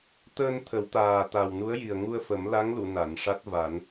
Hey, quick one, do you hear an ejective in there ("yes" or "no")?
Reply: no